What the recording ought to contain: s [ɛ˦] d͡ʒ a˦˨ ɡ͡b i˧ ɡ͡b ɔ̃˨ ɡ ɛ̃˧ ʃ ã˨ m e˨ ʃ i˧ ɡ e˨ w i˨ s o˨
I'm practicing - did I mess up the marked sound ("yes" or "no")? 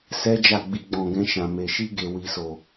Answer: no